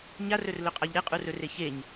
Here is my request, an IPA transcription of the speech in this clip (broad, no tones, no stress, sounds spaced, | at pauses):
ɲ a r ɵ r l ɵ qʼ a ʎ ɾ e qʼ u r ɵ r e ç e ɲ